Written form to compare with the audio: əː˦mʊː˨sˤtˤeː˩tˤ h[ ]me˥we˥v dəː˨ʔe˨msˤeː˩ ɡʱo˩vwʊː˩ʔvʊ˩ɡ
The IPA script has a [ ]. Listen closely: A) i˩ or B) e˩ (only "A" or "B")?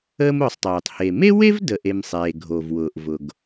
B